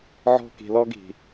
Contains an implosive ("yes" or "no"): no